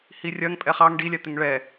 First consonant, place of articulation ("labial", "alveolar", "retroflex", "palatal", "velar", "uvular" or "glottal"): glottal